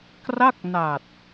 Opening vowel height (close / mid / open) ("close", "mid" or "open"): open